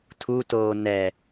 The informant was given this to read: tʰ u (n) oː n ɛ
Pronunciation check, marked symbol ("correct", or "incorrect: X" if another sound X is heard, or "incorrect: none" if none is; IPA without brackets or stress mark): incorrect: t